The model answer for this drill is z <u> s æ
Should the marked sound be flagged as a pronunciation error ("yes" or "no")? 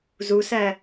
no